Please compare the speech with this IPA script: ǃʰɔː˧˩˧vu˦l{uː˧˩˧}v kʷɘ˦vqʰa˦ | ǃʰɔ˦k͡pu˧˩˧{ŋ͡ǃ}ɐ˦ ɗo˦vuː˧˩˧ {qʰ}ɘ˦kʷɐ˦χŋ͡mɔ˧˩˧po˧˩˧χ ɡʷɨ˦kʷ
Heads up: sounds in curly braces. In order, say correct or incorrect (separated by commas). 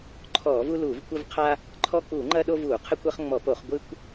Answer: correct, correct, correct